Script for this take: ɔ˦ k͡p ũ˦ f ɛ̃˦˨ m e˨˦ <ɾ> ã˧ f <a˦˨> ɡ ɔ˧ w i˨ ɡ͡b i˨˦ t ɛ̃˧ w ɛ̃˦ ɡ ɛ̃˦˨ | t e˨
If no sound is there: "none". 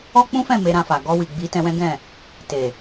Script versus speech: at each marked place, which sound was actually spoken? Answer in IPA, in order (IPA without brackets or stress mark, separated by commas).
ɾ, a˨